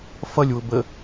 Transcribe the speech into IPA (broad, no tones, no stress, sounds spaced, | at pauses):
f ʌ lʲ w ʊ b ə